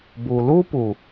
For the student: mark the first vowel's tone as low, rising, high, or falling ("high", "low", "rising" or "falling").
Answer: low